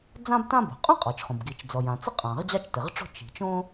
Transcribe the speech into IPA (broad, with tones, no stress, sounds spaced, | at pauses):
d͡z ã˥ b t ã˥ b o̤˩ qʼ õ˥ qʼ ɔ˩ t͡ʃ χ õ˩ b ɡ i˩ t͡ʃ d͡z ɔ˩ j ã˩ t͡s ɪ˥ qʼ ã˩ ʁ d͡ʑ ɑ˥ t͡ʃ t ɪ˩ ʁ ʈ͡ʂ o̤˥ t͡ʃ i̤˩ t͡ʃ õ˥